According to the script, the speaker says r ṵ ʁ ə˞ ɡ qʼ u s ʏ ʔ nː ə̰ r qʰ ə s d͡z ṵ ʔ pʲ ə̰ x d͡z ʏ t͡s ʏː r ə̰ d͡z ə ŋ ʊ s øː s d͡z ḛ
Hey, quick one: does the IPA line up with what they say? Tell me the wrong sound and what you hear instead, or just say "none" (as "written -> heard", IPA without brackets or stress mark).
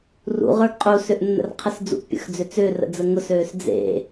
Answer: none